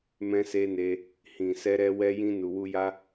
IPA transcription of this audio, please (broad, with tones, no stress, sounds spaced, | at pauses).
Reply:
m ɛ̃˧ s e˧ n e˧ | h ĩ˨ s ɛ˧ ɾ ɛ˧ w ɛ˧ j ĩ˧ n u˨ w u˧ j a˦